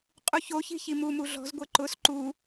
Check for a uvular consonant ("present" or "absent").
present